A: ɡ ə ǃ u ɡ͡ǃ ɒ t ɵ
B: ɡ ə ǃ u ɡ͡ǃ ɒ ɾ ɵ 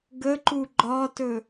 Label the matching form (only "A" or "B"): A